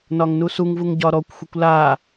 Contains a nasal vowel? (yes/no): no